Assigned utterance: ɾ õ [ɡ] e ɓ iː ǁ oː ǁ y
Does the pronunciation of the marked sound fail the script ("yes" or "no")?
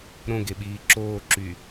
no